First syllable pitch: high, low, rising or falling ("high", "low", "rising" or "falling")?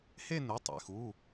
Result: falling